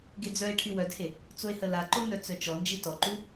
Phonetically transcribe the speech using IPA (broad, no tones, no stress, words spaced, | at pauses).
ɡed͡zœe̯ʈʰy wœdhe | t͡soe̯həlaǃo nœt͡sœt͡ʃɔnd͡ʒi tɔǃu